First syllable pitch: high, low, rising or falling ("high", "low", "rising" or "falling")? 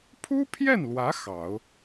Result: high